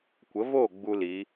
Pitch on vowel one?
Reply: rising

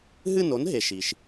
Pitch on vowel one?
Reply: falling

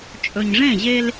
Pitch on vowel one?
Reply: low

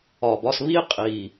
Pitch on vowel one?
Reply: low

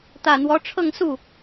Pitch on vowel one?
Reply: low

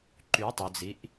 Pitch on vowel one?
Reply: rising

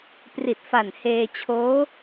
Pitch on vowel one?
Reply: low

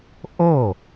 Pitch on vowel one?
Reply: falling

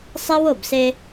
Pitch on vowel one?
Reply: high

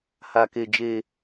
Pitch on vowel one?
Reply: high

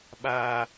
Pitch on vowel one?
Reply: low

